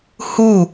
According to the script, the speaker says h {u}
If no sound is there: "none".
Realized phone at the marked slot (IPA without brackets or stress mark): u